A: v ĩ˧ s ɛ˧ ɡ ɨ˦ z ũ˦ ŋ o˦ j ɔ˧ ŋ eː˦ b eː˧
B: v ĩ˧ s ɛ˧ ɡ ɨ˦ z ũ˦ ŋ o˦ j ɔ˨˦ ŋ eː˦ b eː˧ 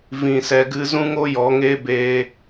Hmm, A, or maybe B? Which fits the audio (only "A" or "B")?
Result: B